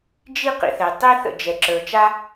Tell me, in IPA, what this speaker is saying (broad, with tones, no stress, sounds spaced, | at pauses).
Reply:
d͡ʒ i˥ q ḭ˩ θ ɛ˩ tˤ i˥ θ ə̰˩ d͡ʒ ɛ˩ ǁ ə˞˩ t͡ʃ a˥